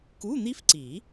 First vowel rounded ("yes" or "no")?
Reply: yes